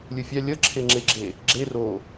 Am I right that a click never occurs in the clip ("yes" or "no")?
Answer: no